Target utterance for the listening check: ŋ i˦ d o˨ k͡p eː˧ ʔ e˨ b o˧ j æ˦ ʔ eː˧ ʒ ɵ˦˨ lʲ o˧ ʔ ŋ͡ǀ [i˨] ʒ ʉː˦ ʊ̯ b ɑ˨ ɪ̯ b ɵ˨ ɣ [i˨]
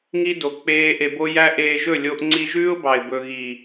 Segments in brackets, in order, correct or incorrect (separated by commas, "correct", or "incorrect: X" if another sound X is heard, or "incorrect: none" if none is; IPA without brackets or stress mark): incorrect: i˧, correct